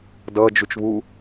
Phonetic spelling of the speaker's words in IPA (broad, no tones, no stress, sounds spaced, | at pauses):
d ʌ d͡ʒ u t͡ʃ β u